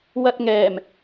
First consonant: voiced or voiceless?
voiced